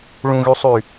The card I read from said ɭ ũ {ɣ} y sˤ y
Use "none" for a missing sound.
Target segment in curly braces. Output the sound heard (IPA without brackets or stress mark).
ɣ